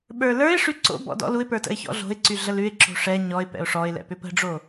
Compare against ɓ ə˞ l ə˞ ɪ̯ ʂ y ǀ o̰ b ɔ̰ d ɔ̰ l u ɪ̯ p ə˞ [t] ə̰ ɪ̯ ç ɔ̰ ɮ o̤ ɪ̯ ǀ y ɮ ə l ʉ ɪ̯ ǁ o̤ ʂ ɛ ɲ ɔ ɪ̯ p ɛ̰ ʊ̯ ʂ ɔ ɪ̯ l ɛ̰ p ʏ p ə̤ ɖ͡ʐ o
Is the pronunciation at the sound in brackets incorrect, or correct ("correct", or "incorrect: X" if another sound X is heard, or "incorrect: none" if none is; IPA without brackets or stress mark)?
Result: correct